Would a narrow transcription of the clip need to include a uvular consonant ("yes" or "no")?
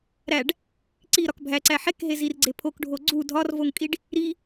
no